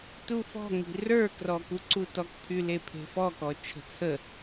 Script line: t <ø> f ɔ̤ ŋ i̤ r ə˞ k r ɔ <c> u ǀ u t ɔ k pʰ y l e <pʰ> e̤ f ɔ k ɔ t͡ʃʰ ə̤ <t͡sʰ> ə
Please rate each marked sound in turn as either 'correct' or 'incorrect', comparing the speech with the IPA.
incorrect, incorrect, correct, correct

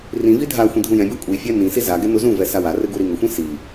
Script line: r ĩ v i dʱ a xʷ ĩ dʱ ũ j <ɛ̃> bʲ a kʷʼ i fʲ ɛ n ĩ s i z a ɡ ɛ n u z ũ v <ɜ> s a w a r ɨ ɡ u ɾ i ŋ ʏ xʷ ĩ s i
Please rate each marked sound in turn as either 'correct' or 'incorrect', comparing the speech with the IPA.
correct, incorrect

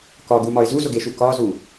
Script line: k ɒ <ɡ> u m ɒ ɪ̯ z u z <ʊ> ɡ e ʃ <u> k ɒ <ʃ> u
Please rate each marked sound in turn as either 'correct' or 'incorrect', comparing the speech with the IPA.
correct, correct, correct, incorrect

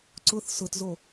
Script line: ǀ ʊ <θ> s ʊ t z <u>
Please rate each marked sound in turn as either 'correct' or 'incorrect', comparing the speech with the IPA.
correct, incorrect

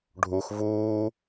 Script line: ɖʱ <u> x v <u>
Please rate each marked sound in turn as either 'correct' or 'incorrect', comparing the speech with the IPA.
correct, incorrect

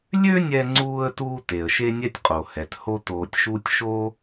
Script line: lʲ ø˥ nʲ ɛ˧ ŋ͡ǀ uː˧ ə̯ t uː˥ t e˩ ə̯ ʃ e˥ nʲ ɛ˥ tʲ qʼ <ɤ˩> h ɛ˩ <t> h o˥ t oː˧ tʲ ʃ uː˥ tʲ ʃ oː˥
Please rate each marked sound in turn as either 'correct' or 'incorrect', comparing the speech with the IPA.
incorrect, correct

